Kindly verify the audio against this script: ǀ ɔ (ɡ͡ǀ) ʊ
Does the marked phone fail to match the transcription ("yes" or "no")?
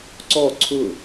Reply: yes